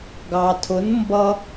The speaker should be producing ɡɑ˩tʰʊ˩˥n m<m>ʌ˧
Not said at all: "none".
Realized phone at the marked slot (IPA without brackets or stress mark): b